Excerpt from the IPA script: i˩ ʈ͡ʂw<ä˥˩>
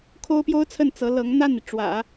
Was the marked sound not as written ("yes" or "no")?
yes